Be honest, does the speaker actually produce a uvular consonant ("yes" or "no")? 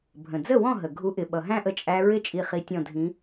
yes